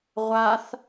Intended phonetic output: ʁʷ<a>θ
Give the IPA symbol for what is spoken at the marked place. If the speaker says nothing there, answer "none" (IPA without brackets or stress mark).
a